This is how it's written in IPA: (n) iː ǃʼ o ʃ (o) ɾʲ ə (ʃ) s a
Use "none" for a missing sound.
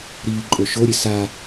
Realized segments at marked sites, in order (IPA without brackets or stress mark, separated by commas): ɾ, o, none